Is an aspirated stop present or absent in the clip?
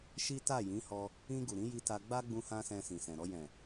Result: absent